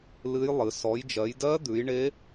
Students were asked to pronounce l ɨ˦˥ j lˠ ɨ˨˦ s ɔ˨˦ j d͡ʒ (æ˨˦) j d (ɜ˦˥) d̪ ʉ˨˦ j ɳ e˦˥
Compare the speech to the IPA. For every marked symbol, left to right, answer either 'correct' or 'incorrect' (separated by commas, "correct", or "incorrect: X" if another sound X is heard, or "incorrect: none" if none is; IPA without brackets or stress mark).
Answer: incorrect: ɜ˨˦, correct